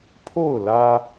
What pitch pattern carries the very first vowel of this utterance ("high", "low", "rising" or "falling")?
falling